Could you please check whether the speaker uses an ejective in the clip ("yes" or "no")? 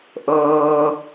no